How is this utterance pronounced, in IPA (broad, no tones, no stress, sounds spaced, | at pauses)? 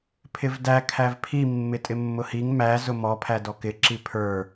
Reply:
pʰ ɪ v d æ kʰ æ v pʰ i mː ɪ tʼ ɪ mː ʊ h i ŋ m æ z ʊ m ɔ pʰ æ d ɔ k ɪ ǁ i pʰ ə˞